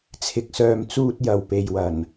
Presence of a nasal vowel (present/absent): absent